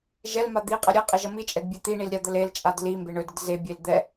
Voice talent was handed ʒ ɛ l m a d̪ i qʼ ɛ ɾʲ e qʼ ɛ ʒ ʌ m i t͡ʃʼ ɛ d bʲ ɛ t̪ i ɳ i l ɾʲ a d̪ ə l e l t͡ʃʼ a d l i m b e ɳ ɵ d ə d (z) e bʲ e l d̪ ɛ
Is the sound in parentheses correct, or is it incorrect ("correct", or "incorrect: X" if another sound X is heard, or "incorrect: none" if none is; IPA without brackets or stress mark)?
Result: correct